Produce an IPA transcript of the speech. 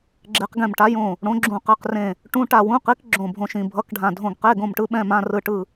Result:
ɡ͡ǁe˧˥qɡɛ̃˦˨mʈa˧˥ jõ˦˨ | ɽõ˧˥ɡ͡ǁũ˦˨qɛ˧˥˧qrẽ˦˨ | ʈũ˧˥˧ʈa˦˨wũ˧˥˧qi˧˥k ɡ͡ǁõ˦˨bʱõ˧˥˧ʃĩ˦˨ bʱʌ˧˥˧kɖʱã˦˨ dʱõ˦˨ɡqe˧˥˧ɡõ˦˨mʈɯ˧˥ ɓɛ̃˧˥˧mã˧˥˧rɯ˦˨ʈɯ˦˨

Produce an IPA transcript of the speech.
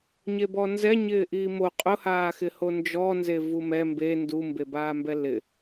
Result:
ɲebɔnzɛ ɲɪːʔiːmo qʼʊhaːxɪho nd͡ʒɔnze vumɛ mbe ndumbebaːmbɛ lɪ

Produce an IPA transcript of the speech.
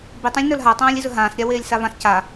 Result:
bitˤãlʲnə˞l ɦatˤãːlʲizɵ ɦãːsɾʲaweːlʲsa vãs ca

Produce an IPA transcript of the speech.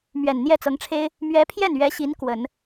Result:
mɥɛ˨˩n n̪jɛ˥˩t͡sɤ˧˥ŋʈ͡ʂʰe˥ɪ̯ | mɥɛ˧˥pʰjɛ˥˩nɥɛ˧˥ɕi˧˥n kwə˨˩˦n

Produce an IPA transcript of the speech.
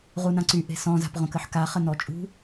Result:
ʁunãǀy ʔe̤sɔ̃ za̤pʁõkəħka χənɔt͡ʃʼṳ

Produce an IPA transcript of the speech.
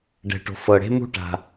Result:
ɖɛ̤˨ʈo̤˨ fɤ˨ɽe̤˦mṳ˦ ʈa̤˧

